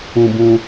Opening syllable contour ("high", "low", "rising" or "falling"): low